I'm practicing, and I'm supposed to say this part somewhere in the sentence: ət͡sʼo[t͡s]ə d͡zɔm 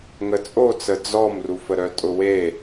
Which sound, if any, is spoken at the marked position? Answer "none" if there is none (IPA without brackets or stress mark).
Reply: t͡s